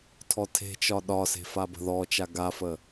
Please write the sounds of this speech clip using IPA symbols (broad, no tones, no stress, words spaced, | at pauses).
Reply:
tʰɔtʰe̤t͡ʃɒ ɗɒse̤ fabə̤ðɔt͡ʃa ɡafə